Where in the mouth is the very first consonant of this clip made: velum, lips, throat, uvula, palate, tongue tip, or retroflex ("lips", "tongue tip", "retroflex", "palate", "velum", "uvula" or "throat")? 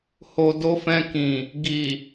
throat